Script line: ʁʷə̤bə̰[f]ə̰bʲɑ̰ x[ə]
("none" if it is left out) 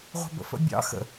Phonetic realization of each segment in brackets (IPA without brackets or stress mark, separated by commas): f, ə̰